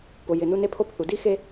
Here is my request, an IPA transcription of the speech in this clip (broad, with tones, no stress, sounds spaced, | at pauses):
p ʊ˨ j ɪ˨ n u˦ n e˦ pʰ o˦ p θ u˨ d i˦ x e˦